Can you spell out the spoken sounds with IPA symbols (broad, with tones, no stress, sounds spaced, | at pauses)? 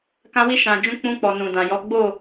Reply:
k ã˧ w i˧ ʃ ã˨ d͡ʒ ũ˧ k͡p ũ˧ k͡p ɔ˨ n ũ˨ d ã˨ j ɔ˨˦ ɡ͡b o˦˨